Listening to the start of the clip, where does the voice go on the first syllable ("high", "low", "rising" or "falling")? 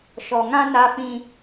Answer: low